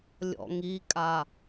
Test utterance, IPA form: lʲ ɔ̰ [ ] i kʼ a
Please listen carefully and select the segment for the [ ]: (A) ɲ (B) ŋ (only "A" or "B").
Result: B